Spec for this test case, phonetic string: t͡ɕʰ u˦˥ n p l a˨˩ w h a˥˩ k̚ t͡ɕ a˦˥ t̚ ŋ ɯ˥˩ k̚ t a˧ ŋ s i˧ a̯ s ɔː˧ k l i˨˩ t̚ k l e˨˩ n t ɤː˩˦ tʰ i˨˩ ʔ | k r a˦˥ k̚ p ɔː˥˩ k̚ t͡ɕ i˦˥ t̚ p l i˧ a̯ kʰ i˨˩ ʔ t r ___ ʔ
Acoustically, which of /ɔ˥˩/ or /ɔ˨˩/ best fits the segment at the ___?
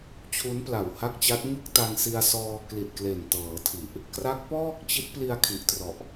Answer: ɔ˨˩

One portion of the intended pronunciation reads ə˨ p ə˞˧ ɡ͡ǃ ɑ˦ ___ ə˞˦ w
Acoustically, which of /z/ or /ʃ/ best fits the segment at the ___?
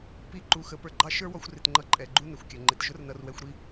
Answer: ʃ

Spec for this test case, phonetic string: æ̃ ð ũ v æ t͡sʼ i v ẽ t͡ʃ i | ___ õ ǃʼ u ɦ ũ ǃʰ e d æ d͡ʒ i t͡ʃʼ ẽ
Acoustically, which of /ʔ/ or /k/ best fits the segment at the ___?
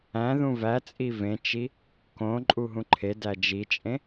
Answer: k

